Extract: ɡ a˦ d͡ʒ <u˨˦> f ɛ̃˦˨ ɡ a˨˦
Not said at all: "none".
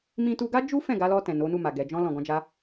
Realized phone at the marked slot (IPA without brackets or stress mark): u˦